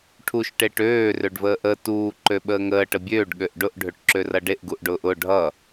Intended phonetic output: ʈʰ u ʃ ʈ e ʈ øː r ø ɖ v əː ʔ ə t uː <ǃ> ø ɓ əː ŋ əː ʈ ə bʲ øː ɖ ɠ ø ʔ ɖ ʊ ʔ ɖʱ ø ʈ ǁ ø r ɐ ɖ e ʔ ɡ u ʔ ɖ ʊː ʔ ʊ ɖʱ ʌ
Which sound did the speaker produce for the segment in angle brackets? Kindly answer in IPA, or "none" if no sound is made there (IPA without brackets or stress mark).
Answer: ǃ